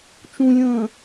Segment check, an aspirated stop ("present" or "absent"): absent